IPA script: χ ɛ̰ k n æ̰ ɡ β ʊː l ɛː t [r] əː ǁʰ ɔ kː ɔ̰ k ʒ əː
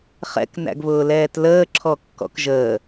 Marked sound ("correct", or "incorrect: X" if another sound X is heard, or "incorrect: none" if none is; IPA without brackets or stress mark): incorrect: l